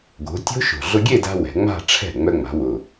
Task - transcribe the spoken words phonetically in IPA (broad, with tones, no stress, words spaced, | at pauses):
ɡo̤˩˧ tʲo̤˦˥ʃo̤˨˩ ɮʊ˧ɡʲe˥˧da̤˧ wɛ̤˩˧ŋ͡ma̤˥˧ʈ͡ʂʰɛ̤˥˩ ŋ͡mœ˧ŋ͡ma̤˩˧wʊ˨˩